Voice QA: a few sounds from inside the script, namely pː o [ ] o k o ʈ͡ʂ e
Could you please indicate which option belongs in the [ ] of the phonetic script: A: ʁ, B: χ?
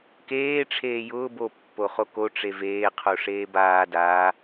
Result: B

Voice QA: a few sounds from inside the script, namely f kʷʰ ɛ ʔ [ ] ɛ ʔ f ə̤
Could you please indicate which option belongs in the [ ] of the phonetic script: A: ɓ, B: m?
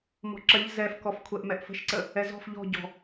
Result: B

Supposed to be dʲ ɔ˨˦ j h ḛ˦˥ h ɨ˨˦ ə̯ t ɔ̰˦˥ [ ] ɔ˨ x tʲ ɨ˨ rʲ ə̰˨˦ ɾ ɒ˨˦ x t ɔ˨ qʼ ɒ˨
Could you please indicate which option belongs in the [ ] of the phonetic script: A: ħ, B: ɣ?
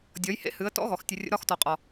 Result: B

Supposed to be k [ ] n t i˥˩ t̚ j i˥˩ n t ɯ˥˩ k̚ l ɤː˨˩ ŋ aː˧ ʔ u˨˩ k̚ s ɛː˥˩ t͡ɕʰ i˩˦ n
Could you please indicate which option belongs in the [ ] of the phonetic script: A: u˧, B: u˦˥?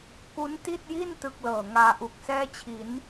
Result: B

